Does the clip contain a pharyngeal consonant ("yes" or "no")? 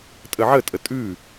yes